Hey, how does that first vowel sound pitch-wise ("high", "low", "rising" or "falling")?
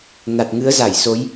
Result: low